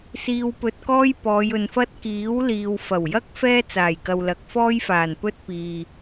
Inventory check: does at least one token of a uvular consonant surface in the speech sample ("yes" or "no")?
no